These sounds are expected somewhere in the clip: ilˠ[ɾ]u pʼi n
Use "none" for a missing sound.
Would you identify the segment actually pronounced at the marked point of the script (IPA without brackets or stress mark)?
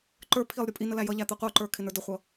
ɾʲ